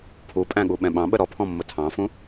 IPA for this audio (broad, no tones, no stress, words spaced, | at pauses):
pʰu pʼæ̃ɠuɓɛ̃ɓɑ̃ ɓəɾɔpʰɔ̃mːʊ tʰɑ̃fũ